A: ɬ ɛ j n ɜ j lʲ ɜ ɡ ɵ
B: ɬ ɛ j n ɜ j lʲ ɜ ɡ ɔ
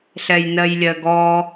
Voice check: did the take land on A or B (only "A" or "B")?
B